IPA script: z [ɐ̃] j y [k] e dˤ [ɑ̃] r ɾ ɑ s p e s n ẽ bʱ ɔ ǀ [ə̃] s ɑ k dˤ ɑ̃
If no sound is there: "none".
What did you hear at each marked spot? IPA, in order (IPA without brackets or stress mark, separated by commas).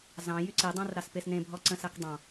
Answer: ɑ̃, ǀ, ɑ̃, ə̃